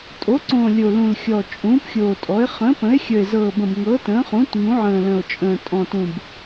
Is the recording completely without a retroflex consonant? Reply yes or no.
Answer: yes